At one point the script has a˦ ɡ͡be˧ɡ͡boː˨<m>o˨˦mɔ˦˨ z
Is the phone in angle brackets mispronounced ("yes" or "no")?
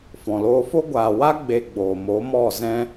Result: no